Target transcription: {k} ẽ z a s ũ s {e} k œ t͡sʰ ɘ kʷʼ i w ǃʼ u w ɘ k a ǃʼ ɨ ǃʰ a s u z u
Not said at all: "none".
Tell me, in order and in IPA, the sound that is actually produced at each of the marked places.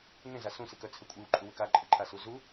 ŋ, ɨ

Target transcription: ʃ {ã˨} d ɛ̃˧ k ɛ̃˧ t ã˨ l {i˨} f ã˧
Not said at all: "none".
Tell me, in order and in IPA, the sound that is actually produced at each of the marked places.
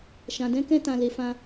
ã˨, e˨

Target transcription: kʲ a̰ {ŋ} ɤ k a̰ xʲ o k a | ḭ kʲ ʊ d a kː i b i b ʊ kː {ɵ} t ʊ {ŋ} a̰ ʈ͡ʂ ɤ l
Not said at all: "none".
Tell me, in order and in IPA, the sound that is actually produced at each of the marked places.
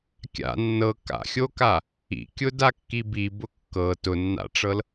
nː, ɤ, nː

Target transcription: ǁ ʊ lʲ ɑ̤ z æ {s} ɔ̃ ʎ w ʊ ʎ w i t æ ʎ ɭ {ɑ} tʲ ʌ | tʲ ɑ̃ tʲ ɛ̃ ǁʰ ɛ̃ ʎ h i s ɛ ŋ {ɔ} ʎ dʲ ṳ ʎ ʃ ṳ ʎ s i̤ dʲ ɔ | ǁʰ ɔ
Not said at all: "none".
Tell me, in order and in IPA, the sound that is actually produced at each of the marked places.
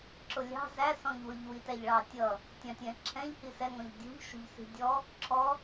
s, ɑ, ɔ̃

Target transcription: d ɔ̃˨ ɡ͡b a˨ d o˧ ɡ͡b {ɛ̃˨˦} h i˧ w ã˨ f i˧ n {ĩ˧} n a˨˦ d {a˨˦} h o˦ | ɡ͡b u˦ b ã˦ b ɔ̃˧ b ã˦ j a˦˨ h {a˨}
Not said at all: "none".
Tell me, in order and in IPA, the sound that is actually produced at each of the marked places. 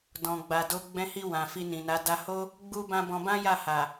ɛ̃˧, ĩ˨, a˧, a˨

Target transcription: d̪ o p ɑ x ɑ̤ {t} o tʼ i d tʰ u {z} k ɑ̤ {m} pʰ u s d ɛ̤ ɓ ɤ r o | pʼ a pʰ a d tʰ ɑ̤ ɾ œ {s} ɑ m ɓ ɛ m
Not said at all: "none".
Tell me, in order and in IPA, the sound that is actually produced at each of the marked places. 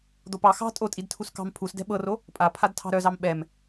tʼ, s, m, z

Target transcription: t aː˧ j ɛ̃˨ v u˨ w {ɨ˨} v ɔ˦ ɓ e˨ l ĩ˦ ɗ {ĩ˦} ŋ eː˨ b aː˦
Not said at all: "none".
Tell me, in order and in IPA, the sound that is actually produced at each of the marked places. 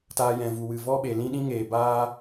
ɨ˨, ĩ˦

